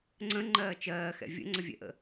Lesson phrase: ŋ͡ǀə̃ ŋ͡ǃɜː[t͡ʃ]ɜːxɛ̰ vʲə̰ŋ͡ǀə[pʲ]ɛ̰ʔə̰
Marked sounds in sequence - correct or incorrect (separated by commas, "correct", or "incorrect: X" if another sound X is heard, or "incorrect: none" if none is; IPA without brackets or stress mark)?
correct, incorrect: vʲ